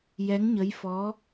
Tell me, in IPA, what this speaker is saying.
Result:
jɛ˧˥ŋɲə˧˥jfɔ˧˥

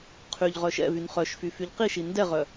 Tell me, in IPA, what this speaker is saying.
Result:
qʰyʎʁœ ʃɛ̰vyn χœʃfy fyʎqiʃi ndɛʁœ

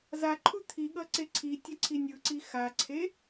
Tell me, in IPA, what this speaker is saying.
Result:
zaǃʰu t̪ʰiɠʌǀe ǀʰitʲʌǀʰi nʲɯǀi xaǀʰe

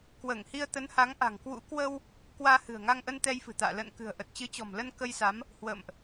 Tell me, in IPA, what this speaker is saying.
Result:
kwəː˧˩ŋhi˧ə̯t̪ə˨˦nha˨˦ŋ ʔa̤˨˩ŋkwṵ˧˥ kwə˧w | kwaː˧hɨ̤˨˩ə̯ŋa˧ŋʔə˧n t̪ɛ˧jfɨ̤˨˩t̪a̰ː˧˨ lə̰ː˧˨nkɨ̤˨˩ə̯ ʔə˨˩t̚ t͡ɕɨ˨˦t͡ɕɔ̤˨˩mlə˧n kə˧jsa˨˦m | hwə̰ː˧˨mʔ

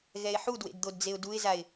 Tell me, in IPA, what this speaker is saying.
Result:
ɣɛɪ̯ħudwḛd d̪odd͡zeʊ̯duɪ̯zaɪ̯

